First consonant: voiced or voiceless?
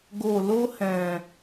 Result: voiced